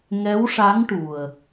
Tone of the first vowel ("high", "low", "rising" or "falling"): rising